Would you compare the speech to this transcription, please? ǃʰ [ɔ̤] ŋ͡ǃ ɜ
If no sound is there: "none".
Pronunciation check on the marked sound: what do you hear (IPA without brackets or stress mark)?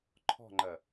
ɔ̤